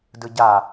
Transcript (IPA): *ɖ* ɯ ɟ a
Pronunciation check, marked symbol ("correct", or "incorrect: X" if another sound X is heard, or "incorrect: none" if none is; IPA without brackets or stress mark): incorrect: d